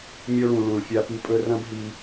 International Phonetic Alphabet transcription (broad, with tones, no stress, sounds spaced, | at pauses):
mʲ o˧ ɭ ũ˨ ɭ ũ˨ ɭ fʲ a˧ p i˧ pʼ ɵ˦ r ɐ̃˦ b ɦ i˧